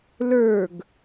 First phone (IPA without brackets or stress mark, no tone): l